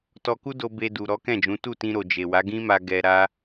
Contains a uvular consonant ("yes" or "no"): no